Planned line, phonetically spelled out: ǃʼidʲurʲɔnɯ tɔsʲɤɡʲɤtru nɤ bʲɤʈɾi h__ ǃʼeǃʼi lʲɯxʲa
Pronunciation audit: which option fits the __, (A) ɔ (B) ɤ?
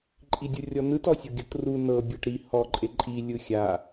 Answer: A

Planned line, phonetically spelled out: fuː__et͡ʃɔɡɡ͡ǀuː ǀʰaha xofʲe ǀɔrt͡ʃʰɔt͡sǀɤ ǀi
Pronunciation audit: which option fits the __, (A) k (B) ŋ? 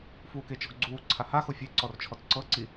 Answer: A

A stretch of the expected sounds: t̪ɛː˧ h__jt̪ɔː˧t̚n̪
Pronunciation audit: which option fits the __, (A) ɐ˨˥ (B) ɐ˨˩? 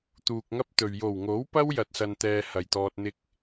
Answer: B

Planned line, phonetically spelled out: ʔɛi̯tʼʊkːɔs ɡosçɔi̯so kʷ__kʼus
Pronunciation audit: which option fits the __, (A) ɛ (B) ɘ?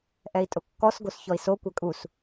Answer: A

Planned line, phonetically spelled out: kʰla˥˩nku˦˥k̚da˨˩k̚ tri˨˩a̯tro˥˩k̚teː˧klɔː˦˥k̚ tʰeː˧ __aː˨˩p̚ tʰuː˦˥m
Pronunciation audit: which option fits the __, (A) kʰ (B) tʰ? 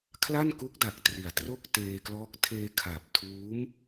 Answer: A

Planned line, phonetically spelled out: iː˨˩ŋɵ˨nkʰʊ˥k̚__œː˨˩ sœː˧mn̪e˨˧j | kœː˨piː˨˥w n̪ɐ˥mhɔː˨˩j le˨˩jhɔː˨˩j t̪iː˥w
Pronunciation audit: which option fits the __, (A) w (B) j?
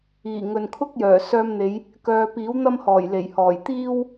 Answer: B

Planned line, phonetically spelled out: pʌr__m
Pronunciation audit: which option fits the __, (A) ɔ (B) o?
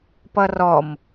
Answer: A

